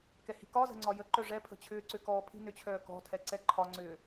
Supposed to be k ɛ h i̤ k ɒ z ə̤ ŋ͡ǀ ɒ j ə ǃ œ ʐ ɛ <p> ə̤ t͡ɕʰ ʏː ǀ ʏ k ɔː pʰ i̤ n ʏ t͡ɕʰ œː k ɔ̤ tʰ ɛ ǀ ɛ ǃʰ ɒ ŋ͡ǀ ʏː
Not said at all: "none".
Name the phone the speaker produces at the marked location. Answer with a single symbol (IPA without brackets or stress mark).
pʰ